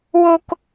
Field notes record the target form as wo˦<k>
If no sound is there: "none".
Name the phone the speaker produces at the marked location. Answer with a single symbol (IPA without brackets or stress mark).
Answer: k